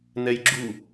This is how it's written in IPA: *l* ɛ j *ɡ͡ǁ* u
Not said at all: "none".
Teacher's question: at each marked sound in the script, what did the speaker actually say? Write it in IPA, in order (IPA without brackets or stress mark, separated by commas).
n, ɡ͡ǁ